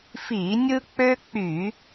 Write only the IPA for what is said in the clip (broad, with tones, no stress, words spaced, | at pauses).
fi˧˩˧nʲɯ˦ k͡pø˦k͡py˧˩˧